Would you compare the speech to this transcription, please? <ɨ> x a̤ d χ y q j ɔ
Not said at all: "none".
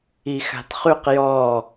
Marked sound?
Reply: i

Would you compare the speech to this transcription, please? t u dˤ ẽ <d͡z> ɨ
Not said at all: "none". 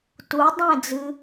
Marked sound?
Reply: d͡z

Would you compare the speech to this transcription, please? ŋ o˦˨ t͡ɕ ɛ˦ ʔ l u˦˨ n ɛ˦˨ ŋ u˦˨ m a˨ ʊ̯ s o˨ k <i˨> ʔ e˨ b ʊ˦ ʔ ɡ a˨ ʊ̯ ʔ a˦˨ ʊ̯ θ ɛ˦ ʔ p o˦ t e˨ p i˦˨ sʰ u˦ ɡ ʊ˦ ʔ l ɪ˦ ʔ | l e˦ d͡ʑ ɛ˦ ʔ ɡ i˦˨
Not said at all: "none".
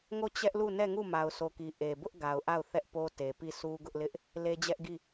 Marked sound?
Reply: i˨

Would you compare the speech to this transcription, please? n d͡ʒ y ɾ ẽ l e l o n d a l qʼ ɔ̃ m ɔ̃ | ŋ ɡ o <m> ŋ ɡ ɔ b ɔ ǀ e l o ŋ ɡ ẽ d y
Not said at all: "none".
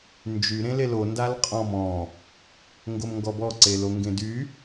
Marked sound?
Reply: m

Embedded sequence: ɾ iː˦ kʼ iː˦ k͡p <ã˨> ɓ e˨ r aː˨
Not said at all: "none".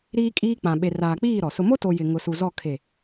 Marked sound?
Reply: ã˨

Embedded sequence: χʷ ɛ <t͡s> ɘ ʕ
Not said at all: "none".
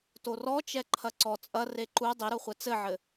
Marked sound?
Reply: t͡s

